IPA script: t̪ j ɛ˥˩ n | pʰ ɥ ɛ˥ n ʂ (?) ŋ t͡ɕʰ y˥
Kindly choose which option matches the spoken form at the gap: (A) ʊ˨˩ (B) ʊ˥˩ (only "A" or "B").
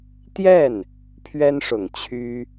A